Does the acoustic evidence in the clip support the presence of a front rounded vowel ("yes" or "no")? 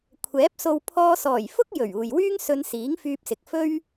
yes